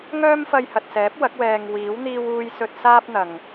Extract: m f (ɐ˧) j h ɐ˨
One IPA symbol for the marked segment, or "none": ɐ˧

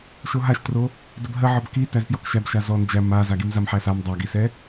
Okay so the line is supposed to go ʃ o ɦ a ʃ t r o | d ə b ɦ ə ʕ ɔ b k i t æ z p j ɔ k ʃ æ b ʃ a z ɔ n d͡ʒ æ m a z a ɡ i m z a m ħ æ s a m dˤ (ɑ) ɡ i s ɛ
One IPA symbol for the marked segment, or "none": a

